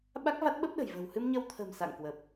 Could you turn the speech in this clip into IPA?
ɓa˦˥k̚va˦˥t̚ɓə˦˥p̚ɗə̤˨˩j və̤˨˩w hɨ˧mɲə˧wt̪ʰə̤˨˩m sa̰˧˨ŋkwə˨˩p̚

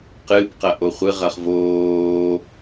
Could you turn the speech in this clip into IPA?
qɨbqɐ ʔoχʷɨʁɐχ voː

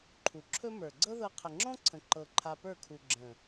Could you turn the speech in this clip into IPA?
ǃʰu˨ǁʰɵ˦mə˞˨ ɡ͡ǀɤ˦ðɤ˧ qʰə˨ŋ͡ǁɔ̃˦ǀʰə̃˨ ǃɤ˨ ǃʰa˧pə˞˦˨kʰu˨ ɡ͡ǁə̃˨

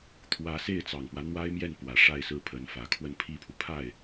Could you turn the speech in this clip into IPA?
t̪ʰwä˧˥se˥˩ɪ̯ t͡sɑ˨˩ŋpwä˦ n̪wa˥ɪ̯mjɛ˥˩npwä˨˩ ʂa˥˧ɪ̯sɹ̩˥˩pʰə˧˥nfä˨˩ kʰwə˥˧npʰi˥˩pʰu˩ pʰa˥˩ɪ̯

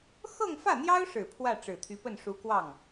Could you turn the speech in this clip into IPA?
xɤ˥˧ŋfä˥˩n̪jɑ˥ʊ̯ʂɻ̩˨˩ pʰwä˥˩ʈ͡ʂɻ̩˨˩t̪ʰy˧˥pə˥˩n ʂu˧˥kwɑ˥˩ŋ

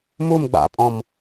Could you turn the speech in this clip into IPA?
mum ɡ͡ba̰pʼɔ̃m

